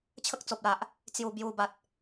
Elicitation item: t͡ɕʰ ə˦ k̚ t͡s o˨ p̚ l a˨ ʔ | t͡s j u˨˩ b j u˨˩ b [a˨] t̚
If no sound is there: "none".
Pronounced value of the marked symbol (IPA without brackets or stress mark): a˨